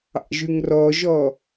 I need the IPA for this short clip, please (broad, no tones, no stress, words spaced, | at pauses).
ɑ̰ʒʉŋrɔʒɔ